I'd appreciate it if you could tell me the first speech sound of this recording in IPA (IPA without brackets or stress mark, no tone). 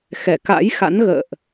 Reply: x